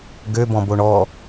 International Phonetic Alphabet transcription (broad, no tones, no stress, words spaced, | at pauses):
ɡøbɔ̃boɳ ɔ